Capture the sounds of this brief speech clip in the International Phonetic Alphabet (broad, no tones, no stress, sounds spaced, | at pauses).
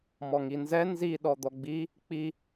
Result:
m ɔ ŋ i n z ɛ n z i ɗ ɔ d̪ ɔ ɡ͡b i | k͡p i